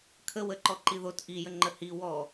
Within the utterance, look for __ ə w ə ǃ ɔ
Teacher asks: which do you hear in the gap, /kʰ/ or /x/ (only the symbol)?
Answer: kʰ